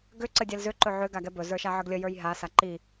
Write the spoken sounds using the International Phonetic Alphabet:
ɡ ʏ ǀ ə dʲ ɛ l z ʏ ǃ ɵ ʕ ʏ ɡ a ɡ ɛ b ɵ z ə˞ ʃ a ʕ ə ɡ lʲ ə j ə˞ j ɦ a s a ǃ i

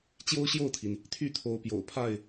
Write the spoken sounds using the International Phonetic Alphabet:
t͡ɕ j o˦ ʊ̯ ɕ j o˥˨ ʊ̯ t̪ʰ i˩ n | t̪ʰ y˥˨ t̪ʰ o˨˦ ʊ̯ p j o̰˨˩ ʊ̯ pʰ a˥˨ ɪ̯

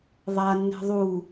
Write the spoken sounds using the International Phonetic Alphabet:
ðˤ a nː ɛ̤ ðˤ u

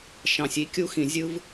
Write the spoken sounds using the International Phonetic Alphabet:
ʃ ɑ̃˨ sʲ i˨˥ kʲ u˦ x ĩ˨ zʲ ɯ˦ v

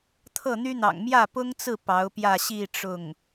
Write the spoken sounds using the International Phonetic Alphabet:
t̪ʰ ɤ˥˩ n̪ y˥ n̪ ɑ̰˨˩ ŋ m j ä˥˩ p ʊ˥ ŋ t͡s ɹ̩˥˩ p ɑ˧˥ ʊ̯ p j ä˥˧ ɕ i˥˧ ʈ͡ʂ ʊ˥˩ ŋ

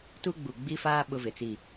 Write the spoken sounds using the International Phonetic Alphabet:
t u˦ ɡ͡b u˨ ɡ͡b i˦ f aː˦ ɓ ʊ˦ v ɪ˨ t͡s i˦˨

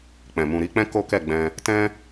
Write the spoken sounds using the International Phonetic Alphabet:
k͡p ɛ̃˨ m ũ˨ ɾ i˧ k͡p ɛ̃˦ k o˦ k ɛ˦˨ ɡ͡b ɛ̃˧ | t ɛ̃˦

